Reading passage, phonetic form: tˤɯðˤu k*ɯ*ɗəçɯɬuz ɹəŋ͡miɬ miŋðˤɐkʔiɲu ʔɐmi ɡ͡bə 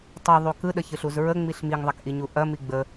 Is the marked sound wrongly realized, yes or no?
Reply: no